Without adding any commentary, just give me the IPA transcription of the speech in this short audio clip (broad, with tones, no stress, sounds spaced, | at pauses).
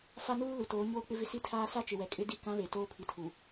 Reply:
f a˦ n uː˦ l u˨ t oː˨˦ ɲ oː˦ k͡p ɪ˦ v ɪ˦ s i˦ tʰ aː˦ s a˦ t͡ʃ ɪ˨ w ɛ˨ kʼ ɪ˦ d i˦˨ k ã˨˦ β e˨ t oː˦ pʰ i˨ tʰ u˨